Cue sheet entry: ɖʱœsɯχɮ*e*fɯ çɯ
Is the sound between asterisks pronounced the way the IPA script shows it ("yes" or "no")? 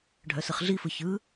no